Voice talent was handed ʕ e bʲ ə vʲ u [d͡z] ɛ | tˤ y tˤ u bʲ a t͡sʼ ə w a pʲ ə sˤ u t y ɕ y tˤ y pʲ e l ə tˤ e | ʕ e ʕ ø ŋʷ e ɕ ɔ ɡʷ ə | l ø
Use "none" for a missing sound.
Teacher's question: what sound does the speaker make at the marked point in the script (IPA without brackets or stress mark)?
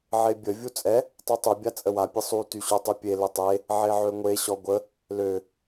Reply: t͡sʼ